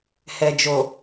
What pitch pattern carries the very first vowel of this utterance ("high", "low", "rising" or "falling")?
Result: low